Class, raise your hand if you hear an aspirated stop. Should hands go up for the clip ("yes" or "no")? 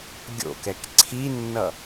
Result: yes